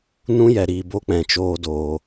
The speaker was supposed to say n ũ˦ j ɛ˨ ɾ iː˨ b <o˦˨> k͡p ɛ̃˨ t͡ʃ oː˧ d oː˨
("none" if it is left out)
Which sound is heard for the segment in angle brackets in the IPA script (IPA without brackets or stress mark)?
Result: o˦